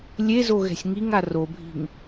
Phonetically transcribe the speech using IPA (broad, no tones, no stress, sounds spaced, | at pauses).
lʲ e z o ɣ ɛ̤ sʲ ŋ i ŋ a r o bʱ i̤ ŋ